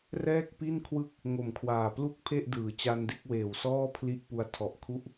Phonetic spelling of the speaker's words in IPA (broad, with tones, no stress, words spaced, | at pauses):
rɛː˥˩k̚pi˥˩nkʰwɯ˥˩k̚ | ŋo˨˩mkʰwaː˨˩ plu˥˩k̚pʰe˥˩ʔ dɯː˩˦t͡ɕa˧nde˥˩k̚ weː˨˩wsɔː˥˩pʰli˦˥ʔpu˧a̯ tʰɔ˨˩ʔkʰu˦˥ʔ